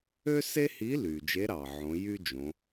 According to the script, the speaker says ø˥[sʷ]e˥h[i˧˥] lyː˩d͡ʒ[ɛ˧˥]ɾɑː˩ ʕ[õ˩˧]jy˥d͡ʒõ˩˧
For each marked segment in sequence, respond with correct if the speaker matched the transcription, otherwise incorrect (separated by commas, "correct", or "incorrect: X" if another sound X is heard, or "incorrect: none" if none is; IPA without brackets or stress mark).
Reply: incorrect: s, correct, incorrect: e˧˥, correct